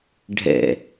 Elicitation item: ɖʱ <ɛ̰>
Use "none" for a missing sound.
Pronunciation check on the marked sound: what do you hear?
ɛ̰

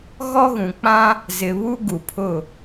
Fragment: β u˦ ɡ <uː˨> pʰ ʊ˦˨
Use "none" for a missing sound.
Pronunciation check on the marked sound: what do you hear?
u˨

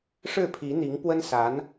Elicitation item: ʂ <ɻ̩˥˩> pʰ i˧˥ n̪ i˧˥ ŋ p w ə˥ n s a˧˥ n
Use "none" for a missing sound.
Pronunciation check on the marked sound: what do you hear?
ɻ̩˥˩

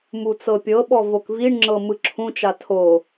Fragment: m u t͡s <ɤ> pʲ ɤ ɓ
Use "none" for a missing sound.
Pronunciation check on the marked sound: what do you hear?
ɤ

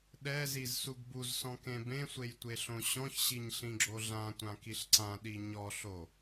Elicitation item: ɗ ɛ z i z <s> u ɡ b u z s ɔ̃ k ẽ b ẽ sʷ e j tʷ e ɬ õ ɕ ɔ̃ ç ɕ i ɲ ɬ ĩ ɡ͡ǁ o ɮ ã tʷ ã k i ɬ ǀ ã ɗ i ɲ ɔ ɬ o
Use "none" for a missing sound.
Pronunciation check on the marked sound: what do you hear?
s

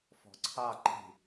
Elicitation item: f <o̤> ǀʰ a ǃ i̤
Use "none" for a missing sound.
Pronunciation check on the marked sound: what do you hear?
ɔ̤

